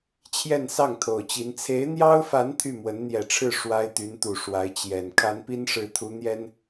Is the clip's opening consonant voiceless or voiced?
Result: voiceless